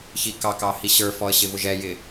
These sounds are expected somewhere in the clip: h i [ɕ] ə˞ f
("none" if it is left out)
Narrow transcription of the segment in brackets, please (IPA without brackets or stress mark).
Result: ɕ